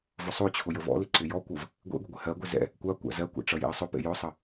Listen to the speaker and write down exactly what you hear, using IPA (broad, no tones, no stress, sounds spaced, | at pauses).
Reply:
v ʊ sˤ o t͡ɕʰ ʊ j ə v ɔ̰ l ɪ ǀ ɪ j ɔ kʷ ʌ v | ɡʷ ḛ ɡʷ ə ɡʷ ɪ h ɜ ɡʷ e z ɛ̰ | kʷ a kʷ a̰ z ɜ kʷ ɛ̰ ʈ͡ʂ ʌ j ḛ ə̯ sˤ ʊ p ḛ j ʊ sˤ ə